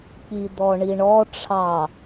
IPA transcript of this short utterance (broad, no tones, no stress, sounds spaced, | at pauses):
k͡p i d̪ ɔ ɳ i ɳ ɔ ʈ͡ʂʰ ɑ